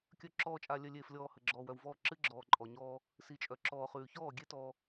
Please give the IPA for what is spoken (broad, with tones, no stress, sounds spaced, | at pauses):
kʲ œ˨ ǁ ɔː˨ t͡ʃʼ a˨ lʲ œ˨ lʲ eː˨ f lʲ ɔː˨ h ə˨ ɡ͡ǁ ɔː˨ w œ˨ w v ɔː˦˨ ǁ ɨ˦ ɡ͡ǁ ɔː˨ ǃʼ ɔ˨ ɲ ɔː˦ | s i˨ t͡ʃʼ œ˨ ǁ ɔː˨ χ ʉː˨ ç ɔː˦˨ ɡʲ e˦ t ɔ˦